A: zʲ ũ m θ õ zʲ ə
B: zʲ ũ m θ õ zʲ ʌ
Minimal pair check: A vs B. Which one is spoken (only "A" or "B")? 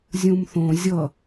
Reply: B